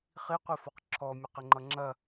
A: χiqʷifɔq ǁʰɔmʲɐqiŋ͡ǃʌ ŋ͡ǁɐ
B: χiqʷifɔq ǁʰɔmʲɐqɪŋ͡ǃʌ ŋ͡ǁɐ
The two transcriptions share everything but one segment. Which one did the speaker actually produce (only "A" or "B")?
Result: B